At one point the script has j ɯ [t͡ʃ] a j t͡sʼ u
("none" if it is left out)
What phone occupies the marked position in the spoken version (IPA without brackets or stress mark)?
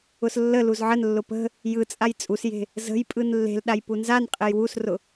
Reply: t͡sʼ